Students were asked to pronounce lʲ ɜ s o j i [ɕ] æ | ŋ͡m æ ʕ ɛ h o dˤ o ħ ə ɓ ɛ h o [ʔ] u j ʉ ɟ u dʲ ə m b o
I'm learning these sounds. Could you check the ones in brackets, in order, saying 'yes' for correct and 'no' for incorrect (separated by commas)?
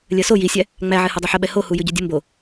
no, no